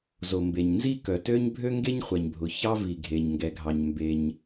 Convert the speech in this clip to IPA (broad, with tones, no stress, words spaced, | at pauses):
zo˩ mbe˩ɲnzi˥ kœ˩tø˥ɲ bʱø˥ŋɡe˥ɲχʷɛ˩ɲbʱʊ˩ çɑ˥vi˩ɡʱe˩ɲŋɡɛ˩ ɡʱɑ˩ɲmbe˩ɲ